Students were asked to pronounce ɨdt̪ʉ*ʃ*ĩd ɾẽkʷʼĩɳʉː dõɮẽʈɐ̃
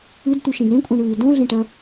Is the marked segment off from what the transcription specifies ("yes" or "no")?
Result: no